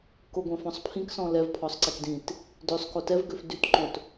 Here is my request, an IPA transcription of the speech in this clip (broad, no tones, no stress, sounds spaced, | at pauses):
k o ɡʷ ɛ̃ f ɔ̃ sˤ pʰ ĩ k s ɔ̃ l ɛ v pʰ ɔ sˤ ǀ i k d ĩ t | d ø sˤ k o t ɛ v ɡ ø f d y t ǃ õ t